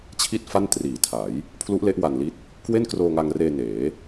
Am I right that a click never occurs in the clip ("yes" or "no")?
yes